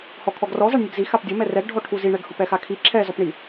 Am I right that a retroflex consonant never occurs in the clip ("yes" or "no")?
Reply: no